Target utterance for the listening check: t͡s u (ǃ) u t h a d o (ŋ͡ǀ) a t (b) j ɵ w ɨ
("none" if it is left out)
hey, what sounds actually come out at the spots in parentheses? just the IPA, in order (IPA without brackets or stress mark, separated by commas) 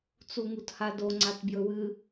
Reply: ŋ, ŋ͡ǀ, b